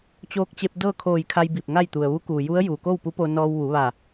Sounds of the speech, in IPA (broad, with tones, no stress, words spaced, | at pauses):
t͡ɕoː˧k̚t͡ɕe˧p̚ dɤː˥˨kʰoː˧˩jkʰa˧j bi˧˩p̚ŋa˥˨jt̪u˩ə̯ ʋu˧˥kuː˩ju˧˥ə̯ ju˩ko˥˨wpu˧˥ po˧nɔː˧w ʋu˩˧ ʋa˧˩